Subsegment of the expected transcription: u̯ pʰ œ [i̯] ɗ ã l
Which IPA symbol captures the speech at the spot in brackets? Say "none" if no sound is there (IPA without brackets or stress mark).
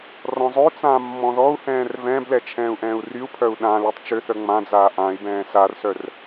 u̯